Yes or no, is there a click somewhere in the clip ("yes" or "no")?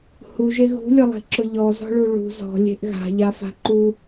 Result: yes